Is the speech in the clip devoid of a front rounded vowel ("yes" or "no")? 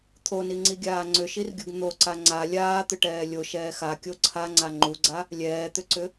no